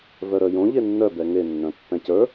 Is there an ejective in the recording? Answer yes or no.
no